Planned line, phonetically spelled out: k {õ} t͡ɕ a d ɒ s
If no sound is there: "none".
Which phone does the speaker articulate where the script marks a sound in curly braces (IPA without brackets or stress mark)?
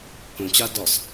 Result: õ